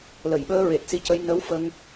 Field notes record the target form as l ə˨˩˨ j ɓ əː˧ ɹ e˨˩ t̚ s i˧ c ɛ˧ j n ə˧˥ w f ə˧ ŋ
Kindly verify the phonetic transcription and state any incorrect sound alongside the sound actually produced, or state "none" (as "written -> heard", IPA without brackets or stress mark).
ɛ˧ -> ə˧